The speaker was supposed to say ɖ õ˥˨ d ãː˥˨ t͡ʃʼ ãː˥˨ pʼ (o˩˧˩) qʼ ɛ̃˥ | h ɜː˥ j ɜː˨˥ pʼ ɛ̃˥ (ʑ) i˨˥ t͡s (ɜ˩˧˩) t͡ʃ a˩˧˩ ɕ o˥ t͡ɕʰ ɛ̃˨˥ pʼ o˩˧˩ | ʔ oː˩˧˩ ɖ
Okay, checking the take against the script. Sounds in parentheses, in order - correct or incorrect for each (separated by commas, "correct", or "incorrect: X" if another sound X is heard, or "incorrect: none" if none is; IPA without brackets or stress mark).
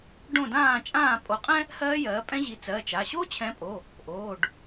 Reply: incorrect: o˨˥, correct, correct